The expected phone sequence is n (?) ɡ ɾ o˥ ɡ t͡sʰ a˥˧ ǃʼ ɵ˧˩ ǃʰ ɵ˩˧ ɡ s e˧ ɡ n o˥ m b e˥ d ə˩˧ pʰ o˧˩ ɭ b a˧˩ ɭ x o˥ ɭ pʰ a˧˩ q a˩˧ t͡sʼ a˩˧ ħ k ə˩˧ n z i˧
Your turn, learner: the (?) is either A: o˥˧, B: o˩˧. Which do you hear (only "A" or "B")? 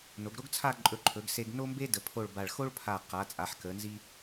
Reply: B